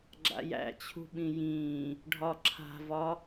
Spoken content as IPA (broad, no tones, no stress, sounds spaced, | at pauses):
ɡ͡ǁ a̰ j æ̰ t͡ɕʰ ṳ ɓ ĩ j ĩː | ɖʱ ɒ ǁʰ a̤ v ɒ